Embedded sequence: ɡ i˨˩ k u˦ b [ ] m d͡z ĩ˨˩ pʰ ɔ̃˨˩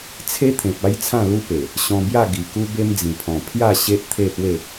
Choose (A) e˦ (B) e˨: A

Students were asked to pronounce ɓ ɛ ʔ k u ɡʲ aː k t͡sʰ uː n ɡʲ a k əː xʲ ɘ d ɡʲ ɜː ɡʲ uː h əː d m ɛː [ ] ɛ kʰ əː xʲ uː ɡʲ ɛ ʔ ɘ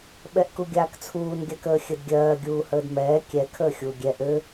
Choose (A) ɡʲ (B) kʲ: B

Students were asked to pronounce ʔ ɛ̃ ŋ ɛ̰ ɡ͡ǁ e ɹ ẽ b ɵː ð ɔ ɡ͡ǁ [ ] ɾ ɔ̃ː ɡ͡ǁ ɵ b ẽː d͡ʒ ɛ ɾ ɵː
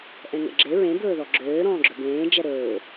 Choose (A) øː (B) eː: A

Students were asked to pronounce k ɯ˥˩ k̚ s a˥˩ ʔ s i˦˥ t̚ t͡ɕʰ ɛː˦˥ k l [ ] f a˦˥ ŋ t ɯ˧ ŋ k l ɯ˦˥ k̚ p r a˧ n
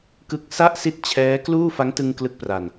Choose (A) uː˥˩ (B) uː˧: A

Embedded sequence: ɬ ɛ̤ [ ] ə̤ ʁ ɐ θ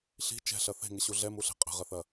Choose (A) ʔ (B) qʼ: B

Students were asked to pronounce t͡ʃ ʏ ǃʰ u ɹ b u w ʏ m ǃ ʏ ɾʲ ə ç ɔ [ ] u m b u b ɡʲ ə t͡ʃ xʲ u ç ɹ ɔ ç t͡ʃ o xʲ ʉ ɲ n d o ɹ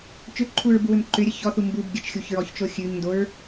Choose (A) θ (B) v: A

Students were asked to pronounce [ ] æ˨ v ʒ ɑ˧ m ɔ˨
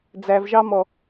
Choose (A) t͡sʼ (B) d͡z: B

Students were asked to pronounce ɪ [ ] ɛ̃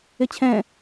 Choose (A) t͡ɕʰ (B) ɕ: A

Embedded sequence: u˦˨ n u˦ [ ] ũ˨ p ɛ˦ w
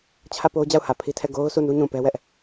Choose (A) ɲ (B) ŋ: A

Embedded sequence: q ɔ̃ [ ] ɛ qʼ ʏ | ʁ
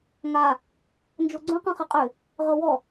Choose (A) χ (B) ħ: A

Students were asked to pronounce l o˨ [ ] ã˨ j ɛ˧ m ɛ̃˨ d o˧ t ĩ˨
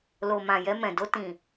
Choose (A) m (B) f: A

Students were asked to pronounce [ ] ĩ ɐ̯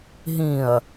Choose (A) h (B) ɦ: B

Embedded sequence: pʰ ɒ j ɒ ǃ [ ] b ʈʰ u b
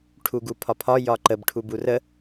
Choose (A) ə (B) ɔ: A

